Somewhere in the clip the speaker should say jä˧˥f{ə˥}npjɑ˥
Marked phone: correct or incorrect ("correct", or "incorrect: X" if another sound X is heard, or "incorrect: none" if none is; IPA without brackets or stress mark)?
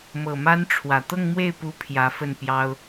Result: incorrect: ə˥˩